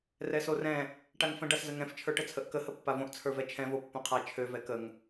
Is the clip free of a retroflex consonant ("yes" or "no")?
no